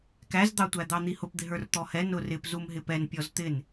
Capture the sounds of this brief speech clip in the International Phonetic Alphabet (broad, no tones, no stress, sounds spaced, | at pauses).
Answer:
k æ z d̪ ɑ tʷ æ d̪ ɑ n̪ i h ʊ p d̪ ɪ ɦ ə˞ r t̪ ɔ h ɛ n ʊ r ɪ p z u m ɦ ɪ p ɛ n pʲ ɔ z t̪ ɪ n